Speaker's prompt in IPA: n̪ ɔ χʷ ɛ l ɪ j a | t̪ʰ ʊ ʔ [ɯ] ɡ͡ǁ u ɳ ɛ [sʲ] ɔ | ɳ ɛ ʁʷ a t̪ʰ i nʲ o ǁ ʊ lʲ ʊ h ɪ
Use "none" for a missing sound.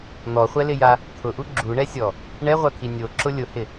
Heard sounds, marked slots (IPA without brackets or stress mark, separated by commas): u, sʲ